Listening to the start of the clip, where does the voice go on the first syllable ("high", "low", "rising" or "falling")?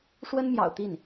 high